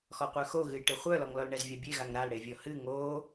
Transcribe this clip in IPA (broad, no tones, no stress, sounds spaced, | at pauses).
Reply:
x ɔ qʷ œ x o ɣ ɨ j ʈ ɨ χʷ œ l ɔ ŋ l ɔ l ɳ ɛ z vʲ a bʲ e ɣ a ŋ ɾ a l ɽ e vʲ ɔ h ɨ ŋ o